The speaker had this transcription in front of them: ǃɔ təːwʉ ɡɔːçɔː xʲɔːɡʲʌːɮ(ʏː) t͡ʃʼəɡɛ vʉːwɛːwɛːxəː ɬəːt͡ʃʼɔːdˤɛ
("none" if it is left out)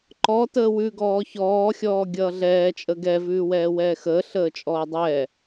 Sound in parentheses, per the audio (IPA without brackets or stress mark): ɛː